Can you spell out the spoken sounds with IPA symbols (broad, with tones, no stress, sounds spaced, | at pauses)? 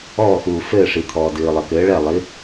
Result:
ɔː˥˩ x uː˩ f ɘː˥˩ ʂ i˩ t̪ʰ ɔː˩ d ɨː˩ lˠ ɘ˩ k ɘː˩˥ ɭ ɛ˥˩ lˠ i˩˥